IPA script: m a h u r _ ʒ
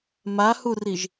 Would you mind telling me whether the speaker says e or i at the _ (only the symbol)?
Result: i